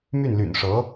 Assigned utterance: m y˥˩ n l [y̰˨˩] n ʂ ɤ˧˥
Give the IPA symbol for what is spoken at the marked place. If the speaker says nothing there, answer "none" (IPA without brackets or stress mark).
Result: y̰˨˩